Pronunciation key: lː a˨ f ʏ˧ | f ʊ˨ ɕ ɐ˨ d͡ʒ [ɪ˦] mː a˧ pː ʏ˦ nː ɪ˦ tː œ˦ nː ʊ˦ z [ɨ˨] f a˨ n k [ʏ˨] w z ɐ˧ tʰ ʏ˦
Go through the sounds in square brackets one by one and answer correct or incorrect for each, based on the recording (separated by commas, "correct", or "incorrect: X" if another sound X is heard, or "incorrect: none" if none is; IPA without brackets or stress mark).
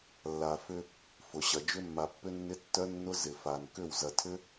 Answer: incorrect: ʏ˦, incorrect: ɪ˨, incorrect: ʏ˦˨